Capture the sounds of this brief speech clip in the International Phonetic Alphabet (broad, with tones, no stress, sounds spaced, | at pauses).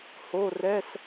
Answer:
h o˧˥˧ r ɛ˧˥˧ s